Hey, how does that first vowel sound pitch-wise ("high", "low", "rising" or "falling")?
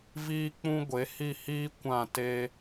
high